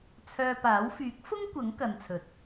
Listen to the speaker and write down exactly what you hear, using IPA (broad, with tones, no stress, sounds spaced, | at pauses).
t͡sʰ œː˧ p aː˨˥ w f yː˨˥ k̚ f ʊ˥ ŋ kʷ ɐ˨˥ ŋ k ɐ˨ n t͡sʰ ɵ˨ t̚